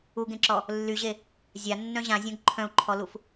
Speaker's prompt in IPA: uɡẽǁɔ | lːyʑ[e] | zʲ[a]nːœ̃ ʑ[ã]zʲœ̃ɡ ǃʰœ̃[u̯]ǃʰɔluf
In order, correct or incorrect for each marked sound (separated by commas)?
correct, correct, correct, correct